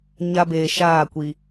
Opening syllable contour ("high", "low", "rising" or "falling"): high